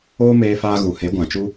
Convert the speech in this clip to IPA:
oː˦ m eː˧ f aː˧ ɣ u˨ h e˨˦ ɡʷ ã˨ t͡ʃ u˦

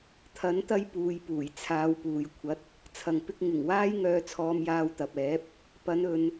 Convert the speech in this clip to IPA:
t̪ʰ ɐ˨˥ n t̪ ɐ˧ j p uː˨ j p uː˨˩ j t͡sʰ aː˨˧ w p uː˨ j kʷʰ ɐ˨˥ t̚ | t͡sʰ ɐ˨ ŋ p ɪ˧ k̚ ŋ ɪ˨˩ ŋ w aː˥ j ŋ œː˧ t͡sʰ ɔː˧ m j aː˧ w t̪ ɐ˨ p̚ ɛː˨˥ p̚ | p ɐ˨˥ n ɵ˨˧ n

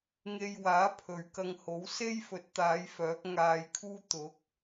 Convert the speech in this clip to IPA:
ŋ e˧ j w aː˨˥ pʰ ɵ˨ ɥ k ɐ˧ ŋ h o˨˥ w s e˥ j f ɵ˨˥ t̚ t̪ aː˨˧ j f œː˨˥ k̚ ŋ aː˧ j kʰ uː˥ t̪ ʊ˨˥ k̚

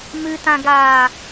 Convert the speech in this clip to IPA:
m ɨ t ã ɡ aː

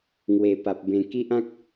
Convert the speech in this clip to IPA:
ŋ w e˨˩ p a˨ p̚ b ẽ˧ k i˦ ʔ ã˦ k̚

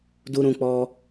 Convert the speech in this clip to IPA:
d u˧ ɾ ũ˧ k͡p ɔ˧

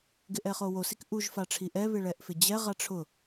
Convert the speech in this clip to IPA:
ɡ ɪ ʔ ɛ χ o w o s i k ʔ u ʒ f a ʈ͡ʂʰ i ʔ ɛ β ɪ ɭ ɛ ʔ f ɪ d͡ʑ ɛ ʁ a ʈ͡ʂʰ ʊ

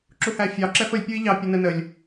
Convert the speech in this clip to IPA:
ǁ u h æ fʲ ɑ ǁ ɛ f ə lʲ pʲ u i̯ ʎ ɑ pʲ ɔ n ə n ə lʲ

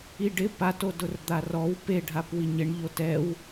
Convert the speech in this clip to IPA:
i ɖ ɪ p a t o d ʊ r d̪ a r ɔ w p e ɖʱ a p w i ɲ ɪ ɳ ʎ o t ɛ w

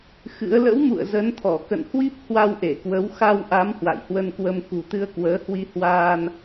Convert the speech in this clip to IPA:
x ɨ̰˧˥ ə̯ l ə̰˧˥ w m ṵ˧˨ ə̯ z ə˨˦ n t̪ʰ ɔ˧˩ k ə̰˧˨ n h w i˦˥ p̚ h w a˧ w ʔ e˧˩ k w ə˨˦ w x a˧ w ʔ a˨˦ m h w a̰˧˨ j h w ə˧ n k w ə˧ m k ṳ˨˩ t̪ ɨ˧ ə̯ k w əː˨˦ h w i˧ h w aː˧ n

